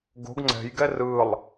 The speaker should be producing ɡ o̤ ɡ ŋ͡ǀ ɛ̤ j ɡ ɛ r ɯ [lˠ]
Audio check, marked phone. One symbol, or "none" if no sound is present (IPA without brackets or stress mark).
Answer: lˠ